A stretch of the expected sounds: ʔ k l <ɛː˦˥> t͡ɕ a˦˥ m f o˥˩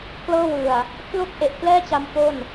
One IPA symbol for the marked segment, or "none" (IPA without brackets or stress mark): ɛː˥˩